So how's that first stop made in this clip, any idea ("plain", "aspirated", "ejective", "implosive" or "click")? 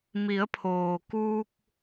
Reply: aspirated